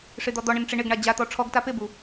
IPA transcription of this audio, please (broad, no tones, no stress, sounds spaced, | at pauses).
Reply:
ʂ ɪ d̪ ɔ d̪ ɔ ɳ ɪ n ʈ͡ʂ ɪ ɳ ɪ ɡ ɳ a d͡ʑ a t̪ ɔ ʈ͡ʂʰ ɔ ɡ t a p ɪ b u